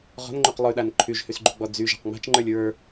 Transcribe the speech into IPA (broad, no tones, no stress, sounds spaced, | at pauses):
ʁ ɔ̤ n ŋ͡ǃ y q lˠ y ɗ a n ǃʰ y ʒ h y s ɡ͡ǃ ṳ ɡ͡b ɔ d͡z y ʒ a̤ q ŋ͡m a̤ t͡ʃ ŋ͡ǃ ə˞ lʲ ɹ ə˞